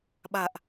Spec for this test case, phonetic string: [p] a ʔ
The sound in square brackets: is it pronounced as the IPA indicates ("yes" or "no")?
no